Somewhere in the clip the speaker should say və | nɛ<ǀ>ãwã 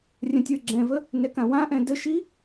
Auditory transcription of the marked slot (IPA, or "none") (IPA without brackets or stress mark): k